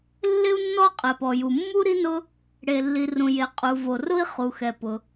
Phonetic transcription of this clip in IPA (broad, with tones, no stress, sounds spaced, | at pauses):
lː ɪ˥ u̯ nː ɔ˥ qʼ ɛ˩ p ɔ˩ j u˩ mː u˥ ɾ i˥ n ʊ˥ | ɽ e˩ lː i˩ r ũ˩ j e˩ qʼ u˩ v o˩ r ʊ˥ i̯ χ u˩ x ɛ˩ p ʊ˩